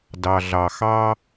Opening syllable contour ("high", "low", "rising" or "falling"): low